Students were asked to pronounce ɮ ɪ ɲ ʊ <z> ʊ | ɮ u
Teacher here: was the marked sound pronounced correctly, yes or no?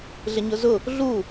yes